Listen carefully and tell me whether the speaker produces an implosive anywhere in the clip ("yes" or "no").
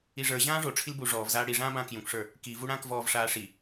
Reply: no